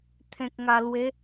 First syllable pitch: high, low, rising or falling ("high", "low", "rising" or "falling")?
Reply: low